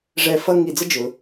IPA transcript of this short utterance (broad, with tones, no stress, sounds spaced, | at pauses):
ʐ ɛ˧˩ f ʌ˥˧ ŋ i˧˩ d͡z ə˥ d͡ʒ ʊ˩˧